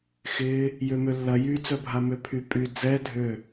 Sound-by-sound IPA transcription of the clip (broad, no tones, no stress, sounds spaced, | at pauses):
x ɪ | j ø m ø lː ɐ j y t͡s œ bʱ a m ø pʰ y pʼ y d͡z ɛ dʱ ø